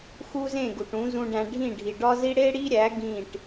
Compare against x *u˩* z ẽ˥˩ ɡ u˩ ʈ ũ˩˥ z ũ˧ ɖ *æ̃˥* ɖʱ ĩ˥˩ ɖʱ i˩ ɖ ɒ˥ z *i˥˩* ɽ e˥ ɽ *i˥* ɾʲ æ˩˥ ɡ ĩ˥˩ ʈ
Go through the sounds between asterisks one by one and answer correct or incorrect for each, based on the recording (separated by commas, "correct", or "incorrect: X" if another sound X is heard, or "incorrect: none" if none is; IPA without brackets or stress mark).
incorrect: u˥, incorrect: æ̃˧, incorrect: i˥, correct